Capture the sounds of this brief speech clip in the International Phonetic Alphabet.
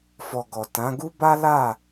fɔ˨ ɡɔ˨ tã˨˦ ɡu˦ba˦ la˦˨

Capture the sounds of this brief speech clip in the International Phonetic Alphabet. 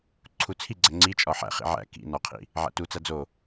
ǀʰut͡sʰiɡ͡ǀæ ŋ͡ǀit͡ʃʼɒ ħæ̰χḭ ʕæ̰ kḭ nɒqʰḭ | ʕæ̰tut͡sæ d͡zo

